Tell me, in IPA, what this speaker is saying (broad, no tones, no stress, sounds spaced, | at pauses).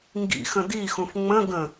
ŋ ɡ ḭ x ə̃ d i x ũ f ŋ͡m ə̃ ɡ ə̃